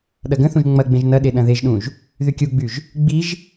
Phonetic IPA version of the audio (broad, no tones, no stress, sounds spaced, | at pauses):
ɗ ɐ ɡ ə̃ θ ũ ʒ ŋ͡m ɐ ɡ͡b ẽ ʒ n ɐ ɗ e ɗ ɐ̃ ð e ʒ ɗ ũ ʒ | ð y kʲ u ɡ͡b y ʒ | ɡ͡b i ʒ